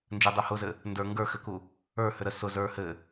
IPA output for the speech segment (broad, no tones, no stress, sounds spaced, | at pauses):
n d͡ʒ ɘ dˤ u h ʊ z ɘ | n d ə˞ ŋ ɡ ə˞ x ɘ k u | ə˞ h ʏ ɾ ə s ʊ z ə˞ h ɘ